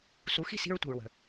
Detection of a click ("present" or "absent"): absent